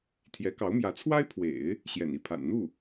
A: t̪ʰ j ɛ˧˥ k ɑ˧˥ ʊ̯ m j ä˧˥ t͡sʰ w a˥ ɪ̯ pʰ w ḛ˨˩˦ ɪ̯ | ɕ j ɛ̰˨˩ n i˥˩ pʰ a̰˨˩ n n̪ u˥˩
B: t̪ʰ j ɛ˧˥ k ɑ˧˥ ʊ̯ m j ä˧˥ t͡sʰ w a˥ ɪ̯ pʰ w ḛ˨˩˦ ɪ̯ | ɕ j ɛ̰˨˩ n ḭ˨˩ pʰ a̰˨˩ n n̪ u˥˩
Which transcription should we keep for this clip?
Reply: A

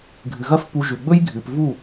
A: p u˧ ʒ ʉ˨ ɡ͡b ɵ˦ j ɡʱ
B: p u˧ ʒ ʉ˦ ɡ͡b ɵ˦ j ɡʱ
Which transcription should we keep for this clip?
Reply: A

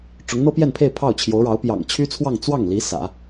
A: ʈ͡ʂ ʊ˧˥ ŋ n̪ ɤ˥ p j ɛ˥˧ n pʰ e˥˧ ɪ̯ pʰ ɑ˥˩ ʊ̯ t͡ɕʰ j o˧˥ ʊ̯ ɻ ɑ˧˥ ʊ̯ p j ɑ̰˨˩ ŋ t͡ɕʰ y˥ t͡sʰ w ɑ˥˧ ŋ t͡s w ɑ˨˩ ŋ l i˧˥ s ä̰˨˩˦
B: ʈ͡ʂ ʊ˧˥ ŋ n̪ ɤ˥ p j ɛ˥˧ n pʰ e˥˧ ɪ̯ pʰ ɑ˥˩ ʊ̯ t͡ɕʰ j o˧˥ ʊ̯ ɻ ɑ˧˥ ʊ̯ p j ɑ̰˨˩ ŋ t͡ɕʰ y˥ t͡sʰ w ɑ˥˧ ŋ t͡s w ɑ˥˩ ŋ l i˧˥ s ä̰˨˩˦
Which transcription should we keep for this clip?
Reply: B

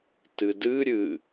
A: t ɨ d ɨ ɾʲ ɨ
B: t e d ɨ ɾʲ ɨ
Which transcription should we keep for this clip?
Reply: A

